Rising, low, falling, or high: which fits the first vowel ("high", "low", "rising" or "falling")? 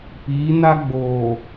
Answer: rising